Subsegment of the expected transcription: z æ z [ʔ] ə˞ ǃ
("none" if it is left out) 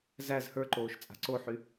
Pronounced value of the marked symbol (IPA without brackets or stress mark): h